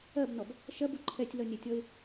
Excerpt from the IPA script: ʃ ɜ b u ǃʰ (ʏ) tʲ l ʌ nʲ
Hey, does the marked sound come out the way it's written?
no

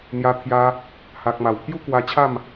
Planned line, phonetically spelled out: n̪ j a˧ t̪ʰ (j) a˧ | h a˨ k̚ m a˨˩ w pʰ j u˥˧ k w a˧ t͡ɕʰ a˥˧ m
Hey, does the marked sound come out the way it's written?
yes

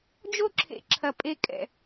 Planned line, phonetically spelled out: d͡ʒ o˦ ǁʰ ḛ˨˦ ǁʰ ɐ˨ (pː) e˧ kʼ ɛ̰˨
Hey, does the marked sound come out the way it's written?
no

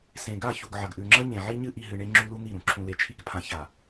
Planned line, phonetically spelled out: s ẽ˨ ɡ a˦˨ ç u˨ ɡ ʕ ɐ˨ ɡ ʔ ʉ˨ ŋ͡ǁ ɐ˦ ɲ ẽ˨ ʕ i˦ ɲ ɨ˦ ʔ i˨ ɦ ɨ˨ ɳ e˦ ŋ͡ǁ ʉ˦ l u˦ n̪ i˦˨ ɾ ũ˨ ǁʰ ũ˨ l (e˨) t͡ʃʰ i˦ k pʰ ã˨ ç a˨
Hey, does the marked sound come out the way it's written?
yes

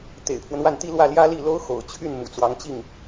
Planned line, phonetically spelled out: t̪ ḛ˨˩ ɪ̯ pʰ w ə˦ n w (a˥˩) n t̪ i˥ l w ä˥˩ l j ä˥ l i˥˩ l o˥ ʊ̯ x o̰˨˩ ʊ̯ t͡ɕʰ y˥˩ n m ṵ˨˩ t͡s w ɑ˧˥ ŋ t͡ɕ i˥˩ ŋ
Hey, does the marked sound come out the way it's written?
yes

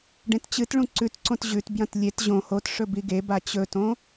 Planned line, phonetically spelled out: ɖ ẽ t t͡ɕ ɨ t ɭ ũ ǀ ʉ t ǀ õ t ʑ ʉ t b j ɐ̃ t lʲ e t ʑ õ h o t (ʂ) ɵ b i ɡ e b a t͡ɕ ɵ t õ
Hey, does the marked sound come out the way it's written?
yes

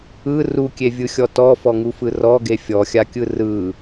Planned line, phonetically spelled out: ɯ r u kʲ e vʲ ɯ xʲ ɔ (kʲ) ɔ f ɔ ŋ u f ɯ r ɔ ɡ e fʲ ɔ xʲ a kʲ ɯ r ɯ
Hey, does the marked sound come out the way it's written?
no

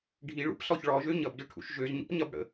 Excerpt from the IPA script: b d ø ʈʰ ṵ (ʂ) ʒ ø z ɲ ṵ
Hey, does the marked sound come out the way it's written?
no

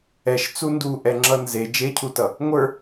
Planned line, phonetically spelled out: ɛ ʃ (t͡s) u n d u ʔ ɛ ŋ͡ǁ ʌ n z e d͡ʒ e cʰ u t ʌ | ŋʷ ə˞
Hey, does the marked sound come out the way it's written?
yes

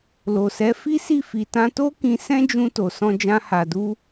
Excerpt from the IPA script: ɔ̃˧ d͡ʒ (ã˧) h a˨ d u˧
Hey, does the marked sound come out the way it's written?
yes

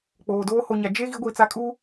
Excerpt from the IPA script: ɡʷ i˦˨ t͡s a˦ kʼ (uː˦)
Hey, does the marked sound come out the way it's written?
yes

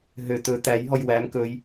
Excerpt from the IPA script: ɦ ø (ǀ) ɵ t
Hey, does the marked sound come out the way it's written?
no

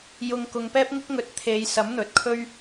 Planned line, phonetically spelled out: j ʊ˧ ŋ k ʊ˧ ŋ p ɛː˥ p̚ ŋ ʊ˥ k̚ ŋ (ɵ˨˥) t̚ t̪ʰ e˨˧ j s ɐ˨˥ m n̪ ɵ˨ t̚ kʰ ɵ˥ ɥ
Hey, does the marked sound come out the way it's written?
yes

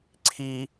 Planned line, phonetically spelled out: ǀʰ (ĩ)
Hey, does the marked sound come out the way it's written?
no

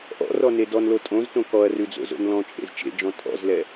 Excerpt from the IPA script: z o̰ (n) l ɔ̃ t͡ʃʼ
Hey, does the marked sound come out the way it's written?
yes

